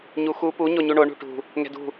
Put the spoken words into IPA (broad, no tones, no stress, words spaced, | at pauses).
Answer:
ɲuxu pu ɲoɲuɳo ɳṳʈṳ | ŋɛ̤dṳ